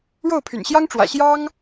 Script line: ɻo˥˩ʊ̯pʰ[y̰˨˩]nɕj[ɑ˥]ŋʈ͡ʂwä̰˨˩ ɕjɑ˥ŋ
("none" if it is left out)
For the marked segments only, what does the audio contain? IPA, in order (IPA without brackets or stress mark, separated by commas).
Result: y̰˨˩, ɑ˥